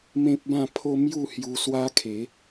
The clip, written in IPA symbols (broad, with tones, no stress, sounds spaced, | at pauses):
m ẽ˦ p̚ b ã˥˧ pʰ o˦ m j u˥˧ h j u˧ s w a˦ kʰ e˨˦